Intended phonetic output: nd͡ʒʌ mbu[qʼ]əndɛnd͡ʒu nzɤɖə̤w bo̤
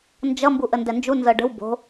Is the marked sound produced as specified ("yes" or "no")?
no